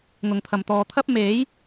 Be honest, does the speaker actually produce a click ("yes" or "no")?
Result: no